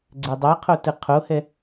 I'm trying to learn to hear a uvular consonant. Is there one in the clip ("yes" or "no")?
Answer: yes